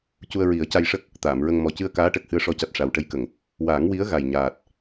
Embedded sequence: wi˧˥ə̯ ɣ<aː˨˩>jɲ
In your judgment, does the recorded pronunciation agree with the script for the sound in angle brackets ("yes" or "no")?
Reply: no